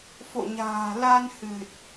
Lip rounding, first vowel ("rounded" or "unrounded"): rounded